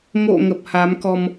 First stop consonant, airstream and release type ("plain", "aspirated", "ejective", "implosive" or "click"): plain